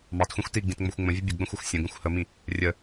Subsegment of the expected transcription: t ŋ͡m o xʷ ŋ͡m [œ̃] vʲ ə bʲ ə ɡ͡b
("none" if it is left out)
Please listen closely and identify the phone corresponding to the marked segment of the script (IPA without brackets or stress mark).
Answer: ə̃